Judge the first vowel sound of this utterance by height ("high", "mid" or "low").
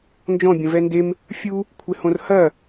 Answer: mid